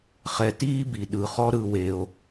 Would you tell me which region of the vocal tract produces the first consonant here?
uvula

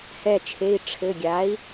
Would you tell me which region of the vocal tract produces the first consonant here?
throat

